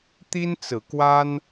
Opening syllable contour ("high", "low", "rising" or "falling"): high